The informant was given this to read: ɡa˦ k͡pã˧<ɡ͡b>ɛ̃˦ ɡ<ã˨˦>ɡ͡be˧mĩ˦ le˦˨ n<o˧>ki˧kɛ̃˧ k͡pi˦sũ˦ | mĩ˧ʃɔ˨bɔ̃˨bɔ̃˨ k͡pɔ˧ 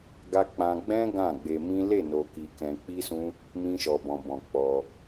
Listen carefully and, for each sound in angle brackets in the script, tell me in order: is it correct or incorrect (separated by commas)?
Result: correct, incorrect, correct